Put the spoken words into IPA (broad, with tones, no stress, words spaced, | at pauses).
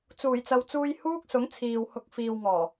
t͡suː˨˩jt͡sɐ˨wt͡suː˧j huː˥k̚sʊ˨˥ŋ t͡sʰiː˨whʊ˧k̚ fiː˨wŋɔː˨˩